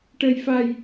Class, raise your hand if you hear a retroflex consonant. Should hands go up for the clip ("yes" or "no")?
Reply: yes